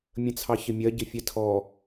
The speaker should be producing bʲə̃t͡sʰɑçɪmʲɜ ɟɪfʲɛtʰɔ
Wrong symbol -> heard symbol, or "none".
bʲ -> mʲ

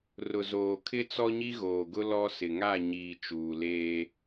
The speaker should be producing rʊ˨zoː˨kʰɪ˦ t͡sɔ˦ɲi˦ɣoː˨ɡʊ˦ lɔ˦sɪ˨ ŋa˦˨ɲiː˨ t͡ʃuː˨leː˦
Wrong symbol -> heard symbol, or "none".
none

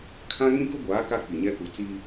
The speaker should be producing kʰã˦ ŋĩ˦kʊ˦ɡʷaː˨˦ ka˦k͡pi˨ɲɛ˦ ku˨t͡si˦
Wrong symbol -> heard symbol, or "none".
none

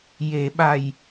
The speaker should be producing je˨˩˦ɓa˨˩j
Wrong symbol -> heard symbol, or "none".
none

